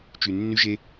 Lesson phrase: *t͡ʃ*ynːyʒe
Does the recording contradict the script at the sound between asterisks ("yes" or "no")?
no